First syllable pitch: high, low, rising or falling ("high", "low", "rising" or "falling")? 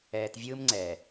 low